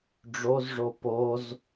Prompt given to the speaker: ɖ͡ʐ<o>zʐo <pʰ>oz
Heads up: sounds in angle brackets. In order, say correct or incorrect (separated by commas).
correct, incorrect